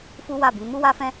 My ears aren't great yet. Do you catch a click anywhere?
no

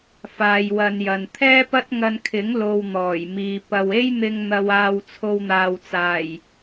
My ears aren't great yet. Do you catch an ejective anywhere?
no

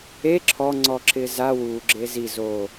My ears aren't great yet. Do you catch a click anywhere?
yes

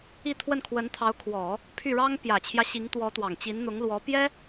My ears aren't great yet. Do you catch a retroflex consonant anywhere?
yes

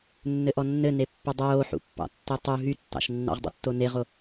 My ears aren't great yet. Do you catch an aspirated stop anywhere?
no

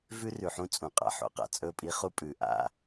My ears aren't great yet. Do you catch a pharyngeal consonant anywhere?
yes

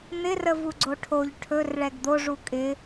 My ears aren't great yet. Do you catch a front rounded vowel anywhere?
no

